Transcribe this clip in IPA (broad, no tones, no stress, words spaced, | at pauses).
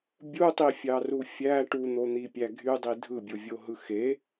bʲutˤifʲɑru fʲæ ʈun̪on̪ipʲæ ɡʱydˤi dʱɯbʲovʲoɦɯ xe